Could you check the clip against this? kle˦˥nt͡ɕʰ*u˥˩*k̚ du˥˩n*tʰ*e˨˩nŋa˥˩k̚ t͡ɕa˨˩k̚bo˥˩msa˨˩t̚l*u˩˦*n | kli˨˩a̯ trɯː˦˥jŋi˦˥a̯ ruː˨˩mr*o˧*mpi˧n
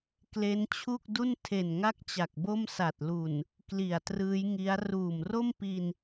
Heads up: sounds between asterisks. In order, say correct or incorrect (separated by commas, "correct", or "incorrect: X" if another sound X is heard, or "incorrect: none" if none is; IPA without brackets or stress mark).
correct, correct, incorrect: u˨˩, incorrect: o˥˩